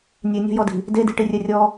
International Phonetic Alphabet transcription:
nʲ e nʲ ɔ̤ j ɔ d i̤ | d e d i̤ ʈ i rʲ ɛ rʲ ɔ

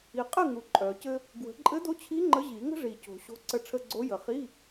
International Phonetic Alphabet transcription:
i˨˩ qʼ ɘ˥˨ ŋ u˨˩ ǃʼ œ˨˩˦ c ɘ˥ | ɡ w ə̤˨˩˦ ǃʼ ɘ˧˥ d o˧˥ t͡ɕʰ i˧˥ ŋ͡ǃ ə˧˥ ʑ i˨˩˦ ŋ ə̤˥ ʐ i˨˩ c o̤˨˩˦ ɕ o̤˧˥ ǀ ə˧˥ ʈ͡ʂʰ ə˧˥˧ ɡ͡ǀ o˧˥ j ə˨˩˦ χ i˧˥˧

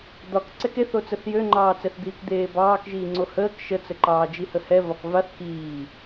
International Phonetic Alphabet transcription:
d̪ ɒ k ǀ ɛ k e θ o t͡s ə θ j ø ŋ͡ǃ ɑː t͡s ɛ θ d̪ iː k d̪ eː b ɑː k ʒ iː ŋ͡ǀ o h əː k ʃ ə t͡s ə ǃ ɑː d͡ʒ i h ə h ɛ v ɒ k v a θ k iː

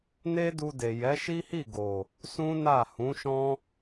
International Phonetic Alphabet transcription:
n e˦ d u˧ d e˨ j ɛ˨˦ ʃ i˦ h i˦˨ ɡ o˨ | s ũ˦ n a˦˨ h ũ˨˦ ʃ ɔ̃˦

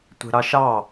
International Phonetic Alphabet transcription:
tʷ e̤ ɾ ɑ ʃ ɑ

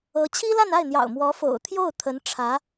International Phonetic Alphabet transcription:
ɤ˧˥ t͡ɕʰ i˥ l a˥˧ n a˥˩ ɪ̯ n̪ j ɑ̰˨˩ ʊ̯ m w ɔ˧˥ f o̰˨˩ ʊ̯ t̪ʰ j o˥˩ ʊ̯ t̪ʰ ə˧˥ n ʈ͡ʂʰ ä˧˥

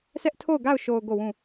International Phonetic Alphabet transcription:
sʰ ɛ˦ ʔ tʰ o˦˨ ʊ̯ ɡ a˦˨ ʊ̯ ʃ o˨ ʊ̯ ɡ o˦˨ w ũ˦˨

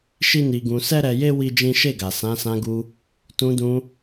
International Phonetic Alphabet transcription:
ʃ i˦ n i˧ ɡ ũ˧ s ɛ˦ ɾ ɛ˧ j e˦ w i˦ d͡ʒ ĩ˦ ʃ e˦˨ ɡ a˨ s ã˨˦ s ã˧ ɡ u˧ | t ũ˧ d ũ˧

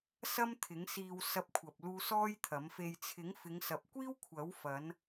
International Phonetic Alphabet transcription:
s ɐ˥ m t̪ʰ ɪ˨˥ ŋ s iː˧ w s ɐ˧ p̚ kʷʰ ɐ˨ p̚ l uː˧ s ɔː˥ j t̪ʰ ɐ˨˥ m f e˧ j t͡sʰ ɪ˨˥ ŋ f ɪ˨˧ ŋ s ɐ˨ p̚ kʷ iː˥ w kʷʰ ɐ˨˥ w f ɐ˨˧ n

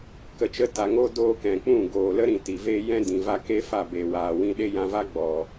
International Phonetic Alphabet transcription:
k ə˨ t͡ʃ ə˧ t a˨ ŋ o˦ d oː˧ k ɛ̃˨ k͡p ũ˦˨ ɡ oː˨ l ə˦ ɾ ĩ˨ t i˨ v eː˦ j ɛ̃˦ d ĩ˨ v a˧ k e˦ f a˦˨ b eː˨ w aː˨ w ĩ˧ ɗ e˦ j ã˧ v a˦ ɡ͡b ɔ˨

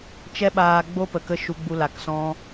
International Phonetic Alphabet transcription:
t͡ʃ ɛ˦ ɓ aː˧ ɡ͡b o˦ p ə˨ k ə˦ ʃ u˧ ɡ͡b u˧ l a˨ k s ɔ̃˧

